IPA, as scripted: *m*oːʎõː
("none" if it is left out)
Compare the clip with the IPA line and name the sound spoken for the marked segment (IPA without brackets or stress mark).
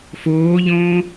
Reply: f